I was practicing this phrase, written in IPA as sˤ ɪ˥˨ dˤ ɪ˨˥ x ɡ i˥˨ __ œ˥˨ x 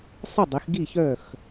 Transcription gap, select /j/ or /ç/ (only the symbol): ç